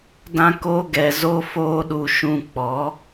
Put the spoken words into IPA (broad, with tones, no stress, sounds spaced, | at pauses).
d ã˦ k oː˦ ɡ ɛ˧ z o˦ f oː˦ ɗ u˧ ʃ ũ˧ k͡p ɔ˨˦